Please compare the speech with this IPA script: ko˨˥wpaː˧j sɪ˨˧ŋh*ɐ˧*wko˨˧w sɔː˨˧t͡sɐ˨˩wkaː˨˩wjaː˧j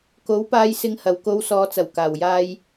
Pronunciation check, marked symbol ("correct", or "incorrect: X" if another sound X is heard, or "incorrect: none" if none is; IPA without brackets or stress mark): incorrect: ɐ˨˩